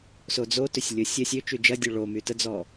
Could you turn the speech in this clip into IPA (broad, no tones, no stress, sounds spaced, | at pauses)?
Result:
s o d͡z o t ø sʲ lʲ ʊ sʲ ə sʲ ø t͡ʃ y d͡ʒ ɐ dʲ ø ɭ o m y t ə d͡z ɔ